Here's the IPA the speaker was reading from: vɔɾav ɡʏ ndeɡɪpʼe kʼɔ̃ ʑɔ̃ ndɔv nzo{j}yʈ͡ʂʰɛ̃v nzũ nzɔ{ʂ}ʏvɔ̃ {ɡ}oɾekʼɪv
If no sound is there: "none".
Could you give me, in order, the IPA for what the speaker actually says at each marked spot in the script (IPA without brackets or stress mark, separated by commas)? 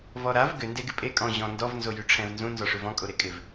j, ʂ, kʼ